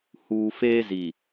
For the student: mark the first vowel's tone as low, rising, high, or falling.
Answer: low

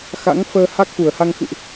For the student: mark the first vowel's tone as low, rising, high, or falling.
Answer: rising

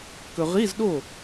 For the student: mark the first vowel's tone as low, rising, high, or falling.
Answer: low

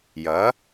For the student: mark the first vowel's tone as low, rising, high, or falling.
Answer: rising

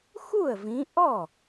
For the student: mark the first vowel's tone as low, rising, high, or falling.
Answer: falling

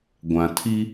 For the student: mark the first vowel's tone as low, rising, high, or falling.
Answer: low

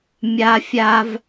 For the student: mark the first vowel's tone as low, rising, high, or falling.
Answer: high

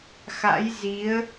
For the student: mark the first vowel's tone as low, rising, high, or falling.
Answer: rising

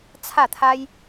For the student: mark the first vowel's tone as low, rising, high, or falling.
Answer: falling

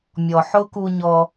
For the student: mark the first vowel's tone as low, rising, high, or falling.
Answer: low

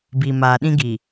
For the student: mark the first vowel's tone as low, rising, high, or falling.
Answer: low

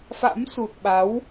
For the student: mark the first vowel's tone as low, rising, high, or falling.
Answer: rising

